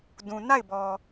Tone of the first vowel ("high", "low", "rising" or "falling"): low